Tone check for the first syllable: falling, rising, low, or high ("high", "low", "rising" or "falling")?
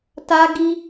high